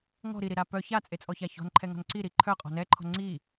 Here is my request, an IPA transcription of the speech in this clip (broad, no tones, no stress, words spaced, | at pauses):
ŋɔ̤ ɾiɾiɾa pœ çat͡sʼet͡sʼɔça çɔ̤nǃʰɛŋɔ̤n ǀiɾi ǃʰœqʼɔ̤ nɛǃʰɔ̤ ŋ͡ǀi